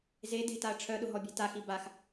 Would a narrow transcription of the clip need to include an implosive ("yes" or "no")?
yes